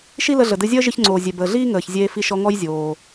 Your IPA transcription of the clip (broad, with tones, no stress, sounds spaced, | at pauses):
ʃ i˥ l ə˧ ɮ ə˩ d ɨ˧ zʲ əː˥ ʒ ɨ˧ ç ŋ͡ǀ oː˩ zʲ e˩ b əː˩ ɮ iː˥ ŋ əː˩ ç zʲ eː˧ f i˧ ʃ ɔ˧ ŋ ɔ˥ j zʲ oː˩